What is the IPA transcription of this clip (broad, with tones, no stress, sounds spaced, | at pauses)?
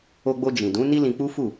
o˧ ɡ͡b o˧ d͡ʒ ĩ˨ d ũ˨˦ n i˦ l ĩ˧ k͡p u˦ f u˦˨